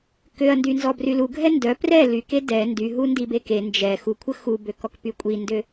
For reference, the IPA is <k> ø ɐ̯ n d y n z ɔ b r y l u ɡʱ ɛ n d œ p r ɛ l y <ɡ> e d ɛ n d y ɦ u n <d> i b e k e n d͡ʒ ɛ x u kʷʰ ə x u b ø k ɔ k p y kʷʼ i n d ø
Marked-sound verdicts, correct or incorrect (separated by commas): correct, incorrect, correct